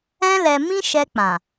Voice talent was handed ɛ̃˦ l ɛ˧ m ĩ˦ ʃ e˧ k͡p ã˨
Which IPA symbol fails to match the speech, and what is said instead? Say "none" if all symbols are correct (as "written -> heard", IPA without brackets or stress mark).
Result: e˧ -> ɛ˧